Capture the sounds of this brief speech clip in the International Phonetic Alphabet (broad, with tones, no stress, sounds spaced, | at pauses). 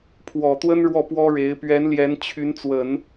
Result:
pʰ w ɔ˨˩ t̪ w ə˥ n ɻ w ɔ˥˩ p w ɔ˥ ɻ e˧˥ ɪ̯ p ɥ ɛ˧˥ n l j ɛ˧˥ n t͡ɕʰ y˧˥ n t͡s w ə˨˩˦ n